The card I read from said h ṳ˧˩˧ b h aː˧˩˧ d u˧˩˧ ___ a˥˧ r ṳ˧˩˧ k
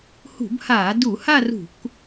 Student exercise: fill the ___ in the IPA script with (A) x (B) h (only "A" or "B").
B